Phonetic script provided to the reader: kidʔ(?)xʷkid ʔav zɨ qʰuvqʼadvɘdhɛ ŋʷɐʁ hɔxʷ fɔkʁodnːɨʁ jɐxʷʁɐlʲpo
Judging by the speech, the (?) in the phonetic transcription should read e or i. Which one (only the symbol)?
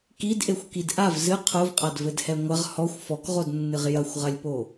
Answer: e